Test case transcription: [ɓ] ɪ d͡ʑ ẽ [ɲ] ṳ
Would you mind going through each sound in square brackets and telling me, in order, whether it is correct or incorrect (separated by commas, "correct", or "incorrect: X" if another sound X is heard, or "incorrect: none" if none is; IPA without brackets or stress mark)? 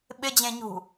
correct, correct